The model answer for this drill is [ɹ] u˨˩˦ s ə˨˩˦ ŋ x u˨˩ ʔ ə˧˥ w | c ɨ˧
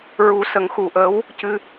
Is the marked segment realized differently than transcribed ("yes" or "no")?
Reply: no